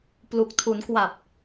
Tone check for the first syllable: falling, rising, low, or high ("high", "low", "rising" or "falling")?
low